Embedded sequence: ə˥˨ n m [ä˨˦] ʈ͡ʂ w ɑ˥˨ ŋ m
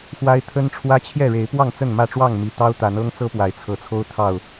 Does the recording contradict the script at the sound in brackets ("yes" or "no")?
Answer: yes